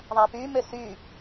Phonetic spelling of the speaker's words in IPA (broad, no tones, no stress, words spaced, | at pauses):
ðˤapymø sy